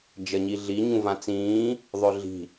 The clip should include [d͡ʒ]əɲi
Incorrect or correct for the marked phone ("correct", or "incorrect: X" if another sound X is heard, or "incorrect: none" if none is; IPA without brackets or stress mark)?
correct